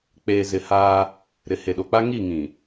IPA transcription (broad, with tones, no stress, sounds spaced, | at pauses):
k͡p eː˨ z ɪ˨ h aː˦ | ɾ ɪ˨ h e˨ ɗ o˨ k͡p a˦ ŋ i˦˨ ŋ ĩ˨